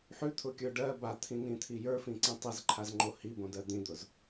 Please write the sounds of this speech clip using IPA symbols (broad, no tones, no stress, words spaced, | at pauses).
ħʉt̪ʰʊkʲə˞ ɖɜ bat̪ʰĩnĩt̪ʰi jə˞fĩǀĩ tˤizǃʰazŋ͡ǃo hibõdɜ d̪ĩd̪ʊz